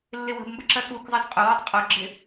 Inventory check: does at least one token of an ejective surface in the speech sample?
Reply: yes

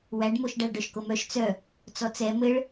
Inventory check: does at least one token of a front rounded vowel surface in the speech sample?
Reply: yes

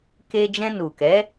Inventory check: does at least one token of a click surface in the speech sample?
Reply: no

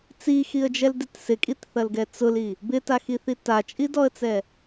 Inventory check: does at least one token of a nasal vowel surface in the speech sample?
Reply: no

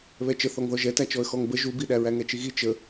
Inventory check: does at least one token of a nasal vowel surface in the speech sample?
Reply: no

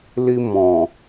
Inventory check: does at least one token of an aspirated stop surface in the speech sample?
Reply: no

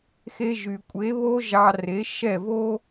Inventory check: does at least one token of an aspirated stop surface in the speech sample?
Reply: no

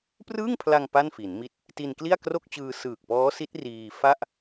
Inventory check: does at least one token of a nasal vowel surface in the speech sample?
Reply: no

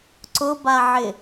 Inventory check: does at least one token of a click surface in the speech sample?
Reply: yes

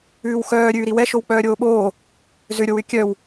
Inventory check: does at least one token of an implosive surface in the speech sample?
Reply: yes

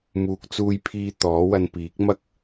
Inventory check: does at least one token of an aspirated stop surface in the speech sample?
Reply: yes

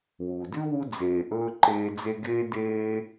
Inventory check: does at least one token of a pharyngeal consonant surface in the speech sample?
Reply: no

